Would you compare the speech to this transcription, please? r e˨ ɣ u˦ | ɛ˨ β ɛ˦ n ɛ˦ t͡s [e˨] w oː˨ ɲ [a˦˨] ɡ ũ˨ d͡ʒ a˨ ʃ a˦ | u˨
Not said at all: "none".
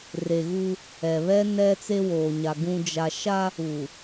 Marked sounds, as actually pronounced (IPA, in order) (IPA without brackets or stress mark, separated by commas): e˦, a˨